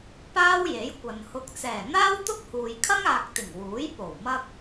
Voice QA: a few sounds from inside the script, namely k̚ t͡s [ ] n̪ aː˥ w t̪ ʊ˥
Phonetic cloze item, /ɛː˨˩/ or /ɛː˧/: ɛː˨˩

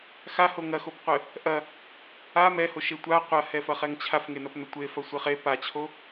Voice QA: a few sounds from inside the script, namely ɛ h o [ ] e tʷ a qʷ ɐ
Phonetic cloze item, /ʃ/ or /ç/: ʃ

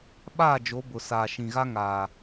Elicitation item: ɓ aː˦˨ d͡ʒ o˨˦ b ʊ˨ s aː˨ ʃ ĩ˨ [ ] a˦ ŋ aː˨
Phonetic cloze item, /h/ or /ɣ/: ɣ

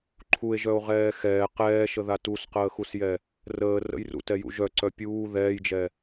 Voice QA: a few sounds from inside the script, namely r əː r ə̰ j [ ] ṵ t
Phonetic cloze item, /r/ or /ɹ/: r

